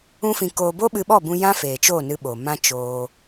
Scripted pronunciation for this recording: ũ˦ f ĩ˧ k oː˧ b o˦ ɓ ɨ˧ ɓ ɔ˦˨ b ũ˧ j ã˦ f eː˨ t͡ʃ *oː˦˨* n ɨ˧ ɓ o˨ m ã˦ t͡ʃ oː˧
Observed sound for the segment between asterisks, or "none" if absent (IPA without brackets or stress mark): oː˦˨